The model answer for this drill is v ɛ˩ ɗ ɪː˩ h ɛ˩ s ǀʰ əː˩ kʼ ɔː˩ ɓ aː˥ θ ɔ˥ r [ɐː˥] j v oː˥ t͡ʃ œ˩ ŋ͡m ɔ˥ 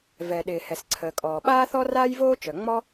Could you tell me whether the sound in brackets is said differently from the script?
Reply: yes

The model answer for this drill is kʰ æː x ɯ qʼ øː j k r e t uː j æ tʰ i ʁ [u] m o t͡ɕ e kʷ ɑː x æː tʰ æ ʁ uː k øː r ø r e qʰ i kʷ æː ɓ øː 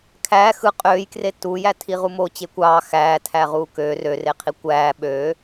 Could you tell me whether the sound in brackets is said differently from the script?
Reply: no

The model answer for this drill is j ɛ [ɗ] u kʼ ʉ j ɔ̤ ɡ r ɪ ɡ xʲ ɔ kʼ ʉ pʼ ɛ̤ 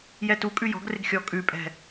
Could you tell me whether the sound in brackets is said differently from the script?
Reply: yes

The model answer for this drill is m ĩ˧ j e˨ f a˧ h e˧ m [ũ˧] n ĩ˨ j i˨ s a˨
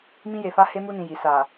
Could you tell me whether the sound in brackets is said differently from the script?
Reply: yes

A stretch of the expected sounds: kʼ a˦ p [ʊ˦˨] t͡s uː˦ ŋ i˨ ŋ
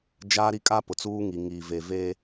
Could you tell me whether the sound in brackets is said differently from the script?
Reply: yes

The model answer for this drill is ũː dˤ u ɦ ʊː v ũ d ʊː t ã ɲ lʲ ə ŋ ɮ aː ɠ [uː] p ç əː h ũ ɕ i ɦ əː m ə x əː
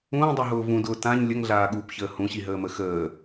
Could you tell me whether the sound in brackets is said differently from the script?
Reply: no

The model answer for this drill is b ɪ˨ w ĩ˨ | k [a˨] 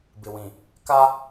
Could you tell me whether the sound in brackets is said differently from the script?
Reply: yes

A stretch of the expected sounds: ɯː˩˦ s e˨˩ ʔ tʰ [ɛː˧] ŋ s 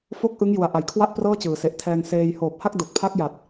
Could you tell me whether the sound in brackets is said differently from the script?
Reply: no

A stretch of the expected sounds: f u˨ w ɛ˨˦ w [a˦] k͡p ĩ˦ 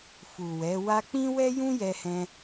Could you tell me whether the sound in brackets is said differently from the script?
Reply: yes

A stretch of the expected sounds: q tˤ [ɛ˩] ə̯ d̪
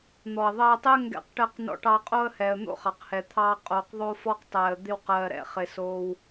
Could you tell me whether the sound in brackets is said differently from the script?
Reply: yes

